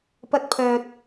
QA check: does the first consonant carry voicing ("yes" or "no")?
no